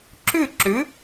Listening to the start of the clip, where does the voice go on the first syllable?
falling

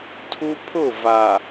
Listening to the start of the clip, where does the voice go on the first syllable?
high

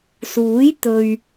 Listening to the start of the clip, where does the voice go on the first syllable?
rising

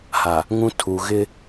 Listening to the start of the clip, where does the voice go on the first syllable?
low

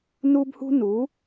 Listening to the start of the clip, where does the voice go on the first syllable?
high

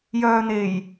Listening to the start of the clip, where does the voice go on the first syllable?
low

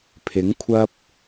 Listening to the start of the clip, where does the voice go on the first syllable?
rising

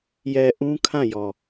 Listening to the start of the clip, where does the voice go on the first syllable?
low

